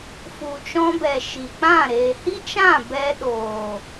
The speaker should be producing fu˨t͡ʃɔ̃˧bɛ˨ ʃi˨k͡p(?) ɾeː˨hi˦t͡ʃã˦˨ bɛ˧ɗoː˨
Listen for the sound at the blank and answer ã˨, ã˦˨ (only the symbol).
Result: ã˦˨